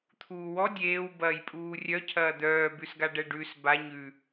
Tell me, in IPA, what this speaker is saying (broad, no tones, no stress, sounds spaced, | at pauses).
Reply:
t̪ʰ uː w ɔ dʲ eː w b ɐː j pʼ uː rʲ œ cʰ ɐː d̪ œː b ʉ s ɡ a ɖ ɛ ɖ ʉ s b a ɲ ʉ